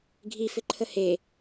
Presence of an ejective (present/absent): absent